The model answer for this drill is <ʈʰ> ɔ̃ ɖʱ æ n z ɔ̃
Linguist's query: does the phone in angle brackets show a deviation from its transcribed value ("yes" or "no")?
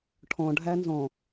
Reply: no